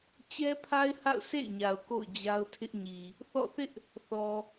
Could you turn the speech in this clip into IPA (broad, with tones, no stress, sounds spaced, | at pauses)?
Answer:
t͡ɕ ɛ˦ pʰ a˦ ɪ̯ h a̰˦˨ ʊ̯ sʰ ḛ˦˨ ɪ̯ ɲ a˨ ʊ̯ k o̰˦˨ ʊ̯ d͡ʑ a˦ ʊ̯ tʰ ɪ˦ ʔ ɲ i˨ | θ ɔ̰˦˨ θ ɪ˦ ʔ | θ ɔ˨